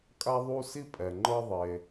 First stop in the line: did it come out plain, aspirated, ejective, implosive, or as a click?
ejective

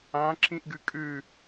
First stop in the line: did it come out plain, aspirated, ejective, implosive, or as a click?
click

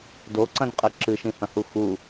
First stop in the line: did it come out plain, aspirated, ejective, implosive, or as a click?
plain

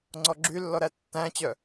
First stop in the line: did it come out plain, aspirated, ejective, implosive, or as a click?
click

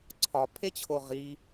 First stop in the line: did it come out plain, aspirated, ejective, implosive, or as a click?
click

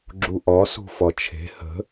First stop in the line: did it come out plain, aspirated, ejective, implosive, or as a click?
click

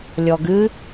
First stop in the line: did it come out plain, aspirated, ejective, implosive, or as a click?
plain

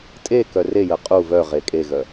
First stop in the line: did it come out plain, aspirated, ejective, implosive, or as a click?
ejective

